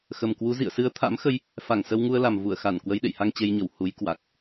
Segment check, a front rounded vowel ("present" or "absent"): absent